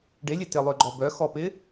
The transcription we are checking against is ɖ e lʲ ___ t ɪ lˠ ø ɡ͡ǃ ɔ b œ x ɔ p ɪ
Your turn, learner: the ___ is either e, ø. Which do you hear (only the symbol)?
e